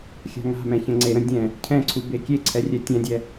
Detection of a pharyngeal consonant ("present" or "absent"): absent